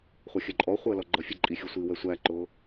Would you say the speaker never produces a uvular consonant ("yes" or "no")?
no